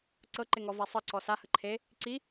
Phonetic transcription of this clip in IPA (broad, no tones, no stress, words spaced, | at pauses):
ǀɤǃɪŋɔva sˤəǀɔ sahə ǃʰe | ǀi